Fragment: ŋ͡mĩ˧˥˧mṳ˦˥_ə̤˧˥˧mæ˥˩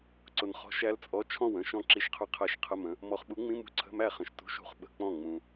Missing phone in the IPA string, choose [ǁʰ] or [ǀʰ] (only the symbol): ǀʰ